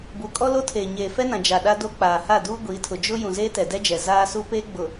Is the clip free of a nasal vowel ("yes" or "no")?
no